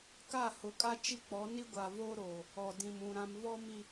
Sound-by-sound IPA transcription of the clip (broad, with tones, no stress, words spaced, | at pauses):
ka˦˨ hʊ˨˦kʼa˦ t͡ʃi˦k͡pɔ˨˦ ni˦ɡʷa˨voː˦ɾoː˨ | ɔ˨dĩ˨mũ˨ ɾã˨m vɔ˦mi˨